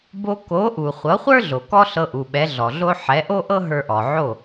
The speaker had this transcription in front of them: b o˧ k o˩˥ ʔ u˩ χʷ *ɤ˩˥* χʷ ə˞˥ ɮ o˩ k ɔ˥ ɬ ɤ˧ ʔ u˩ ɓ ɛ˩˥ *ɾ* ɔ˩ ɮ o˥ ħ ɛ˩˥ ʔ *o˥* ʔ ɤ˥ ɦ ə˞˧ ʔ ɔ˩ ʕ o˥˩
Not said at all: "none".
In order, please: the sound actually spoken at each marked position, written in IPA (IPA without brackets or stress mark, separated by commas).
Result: ɤ˩˥, ɮ, o˥